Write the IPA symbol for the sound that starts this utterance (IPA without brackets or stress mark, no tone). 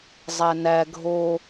zˤ